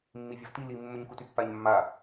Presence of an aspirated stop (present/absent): absent